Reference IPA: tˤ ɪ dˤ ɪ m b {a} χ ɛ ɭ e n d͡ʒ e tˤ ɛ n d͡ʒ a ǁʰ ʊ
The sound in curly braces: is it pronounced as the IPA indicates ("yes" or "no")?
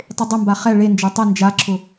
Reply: yes